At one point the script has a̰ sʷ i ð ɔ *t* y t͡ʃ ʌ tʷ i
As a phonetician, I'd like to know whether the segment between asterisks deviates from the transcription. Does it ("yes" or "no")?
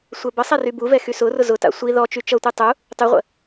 yes